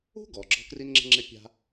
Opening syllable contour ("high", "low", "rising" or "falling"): high